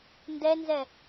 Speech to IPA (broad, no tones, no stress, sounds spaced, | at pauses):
n d ɛ n z ɛ